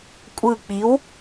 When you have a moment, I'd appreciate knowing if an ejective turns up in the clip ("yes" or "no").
yes